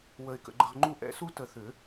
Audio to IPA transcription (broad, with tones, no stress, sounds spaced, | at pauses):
w ə˧ ɪ̯ k ə̰˨˩˦ ɡ͡ǃ ə˧ ʁ ŋ͡ǃ u˥˨ ʔ ɛ̰˦˥ s u˦˥ t ə˨˩˦ θ ʏ˨˩˦